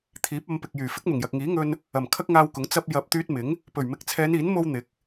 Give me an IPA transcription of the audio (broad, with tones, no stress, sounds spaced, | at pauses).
t̪ʰ iː˨˥ p̚ ɐ˨˧ m p ɪ˨ k̚ j yː˨˩ f ɪ˨˥ k̚ m ʊ˨˩ ŋ j ɐ˨ k̚ ŋ iː˨˥ ŋ ɵ˧ n | ɐ˨˩ m kʰ ɐ˥ k̚ ŋ aː˧ w k ʊ˨˥ ŋ t͡s ɐ˧ p̚ j ɐ˧ p̚ t̪ yː˧ t̚ m ɪ˨˥ ŋ | p ɵ˨˩ ɥ m ɪ˨˥ k̚ t͡sʰ ɛː˨˧ n iː˨˥ n m o˧ w n̪ ɪ˨˥ k̚